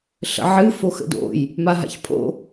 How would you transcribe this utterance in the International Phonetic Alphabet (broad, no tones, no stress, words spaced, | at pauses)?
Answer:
ɬə̰ʕɨ foxə̰do̰j | maɦa̰çpʰo̰